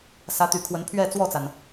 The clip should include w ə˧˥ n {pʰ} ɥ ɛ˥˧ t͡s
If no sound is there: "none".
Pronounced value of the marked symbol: pʰ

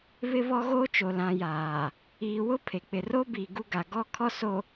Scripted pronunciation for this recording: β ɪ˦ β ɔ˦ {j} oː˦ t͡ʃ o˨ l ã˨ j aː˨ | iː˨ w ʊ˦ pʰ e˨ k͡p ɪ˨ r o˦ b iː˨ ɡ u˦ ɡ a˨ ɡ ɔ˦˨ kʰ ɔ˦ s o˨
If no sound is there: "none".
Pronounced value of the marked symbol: ɣ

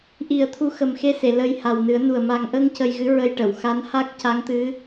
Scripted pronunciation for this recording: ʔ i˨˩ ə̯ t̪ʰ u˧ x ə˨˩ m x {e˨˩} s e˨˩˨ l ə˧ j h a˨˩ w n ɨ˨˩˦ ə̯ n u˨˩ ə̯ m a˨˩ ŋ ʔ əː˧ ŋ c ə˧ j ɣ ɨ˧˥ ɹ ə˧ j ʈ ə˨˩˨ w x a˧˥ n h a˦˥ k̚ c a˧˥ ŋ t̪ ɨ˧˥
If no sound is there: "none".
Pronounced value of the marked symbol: e˧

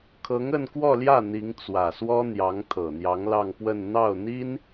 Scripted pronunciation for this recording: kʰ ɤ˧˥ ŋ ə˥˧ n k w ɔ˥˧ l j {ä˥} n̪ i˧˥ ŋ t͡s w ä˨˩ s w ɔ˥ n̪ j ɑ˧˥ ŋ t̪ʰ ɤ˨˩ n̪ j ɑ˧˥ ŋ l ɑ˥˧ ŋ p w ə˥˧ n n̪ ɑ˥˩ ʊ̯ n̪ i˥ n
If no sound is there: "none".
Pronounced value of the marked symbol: ä˥˩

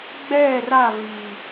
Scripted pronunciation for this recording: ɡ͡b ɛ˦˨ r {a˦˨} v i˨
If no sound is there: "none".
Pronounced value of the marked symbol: a˦˨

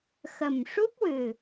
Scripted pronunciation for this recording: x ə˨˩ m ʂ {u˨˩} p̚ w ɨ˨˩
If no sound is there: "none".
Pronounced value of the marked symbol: u˦˥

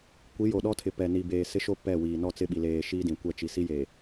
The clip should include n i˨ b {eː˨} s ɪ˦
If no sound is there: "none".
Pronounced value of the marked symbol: eː˨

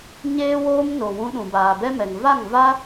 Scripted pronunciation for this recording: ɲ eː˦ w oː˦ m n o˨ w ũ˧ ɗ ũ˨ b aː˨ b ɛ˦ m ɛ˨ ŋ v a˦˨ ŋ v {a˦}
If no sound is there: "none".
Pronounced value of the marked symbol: a˦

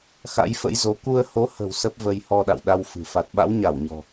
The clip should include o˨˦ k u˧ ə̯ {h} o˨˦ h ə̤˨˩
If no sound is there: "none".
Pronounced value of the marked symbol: h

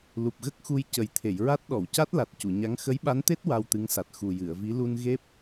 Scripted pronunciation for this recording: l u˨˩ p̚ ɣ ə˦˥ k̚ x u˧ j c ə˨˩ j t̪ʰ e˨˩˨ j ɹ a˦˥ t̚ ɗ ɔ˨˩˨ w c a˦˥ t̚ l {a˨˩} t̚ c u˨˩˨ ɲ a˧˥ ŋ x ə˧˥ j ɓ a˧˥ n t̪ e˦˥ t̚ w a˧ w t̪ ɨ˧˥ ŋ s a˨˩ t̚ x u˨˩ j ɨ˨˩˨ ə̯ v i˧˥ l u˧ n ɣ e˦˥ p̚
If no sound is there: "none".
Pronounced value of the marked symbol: a˨˩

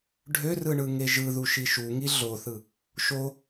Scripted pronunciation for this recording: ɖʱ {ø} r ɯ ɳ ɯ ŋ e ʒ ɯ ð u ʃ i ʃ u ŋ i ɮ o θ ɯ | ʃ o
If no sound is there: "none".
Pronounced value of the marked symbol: ø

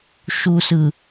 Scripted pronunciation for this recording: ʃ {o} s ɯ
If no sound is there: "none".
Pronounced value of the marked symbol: u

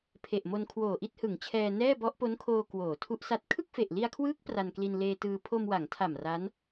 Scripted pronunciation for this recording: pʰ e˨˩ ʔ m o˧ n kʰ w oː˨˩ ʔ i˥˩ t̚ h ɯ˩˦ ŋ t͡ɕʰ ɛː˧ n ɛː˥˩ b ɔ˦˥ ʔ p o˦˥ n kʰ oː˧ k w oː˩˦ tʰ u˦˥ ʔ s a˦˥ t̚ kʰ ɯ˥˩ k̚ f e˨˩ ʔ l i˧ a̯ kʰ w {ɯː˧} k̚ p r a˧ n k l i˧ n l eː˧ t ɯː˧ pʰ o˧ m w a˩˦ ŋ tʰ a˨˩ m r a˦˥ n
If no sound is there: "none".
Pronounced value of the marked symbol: ɯː˦˥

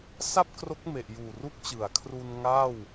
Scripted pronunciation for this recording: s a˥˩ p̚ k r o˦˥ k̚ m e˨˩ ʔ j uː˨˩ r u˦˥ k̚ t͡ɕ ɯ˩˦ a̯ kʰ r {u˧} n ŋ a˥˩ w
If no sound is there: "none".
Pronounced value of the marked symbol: u˧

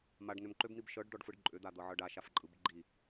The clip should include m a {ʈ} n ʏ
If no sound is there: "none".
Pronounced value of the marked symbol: ɖ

